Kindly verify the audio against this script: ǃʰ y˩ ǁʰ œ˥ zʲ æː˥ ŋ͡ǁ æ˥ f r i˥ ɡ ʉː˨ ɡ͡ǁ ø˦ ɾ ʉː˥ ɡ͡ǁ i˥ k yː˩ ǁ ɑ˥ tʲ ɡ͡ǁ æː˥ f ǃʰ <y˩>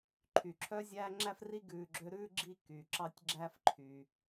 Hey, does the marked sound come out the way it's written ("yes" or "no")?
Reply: yes